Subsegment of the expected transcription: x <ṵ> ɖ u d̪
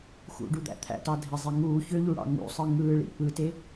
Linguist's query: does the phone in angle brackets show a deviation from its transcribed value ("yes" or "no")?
no